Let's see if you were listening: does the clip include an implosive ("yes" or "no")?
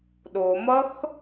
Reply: yes